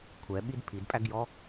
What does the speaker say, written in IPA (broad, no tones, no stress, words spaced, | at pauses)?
kʷʰɛɓid pʰidpʼæɡjɔ